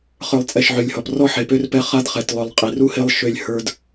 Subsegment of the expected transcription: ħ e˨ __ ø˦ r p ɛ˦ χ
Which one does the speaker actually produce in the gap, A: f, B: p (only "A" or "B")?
B